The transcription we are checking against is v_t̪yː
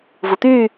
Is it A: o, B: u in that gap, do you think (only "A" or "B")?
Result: B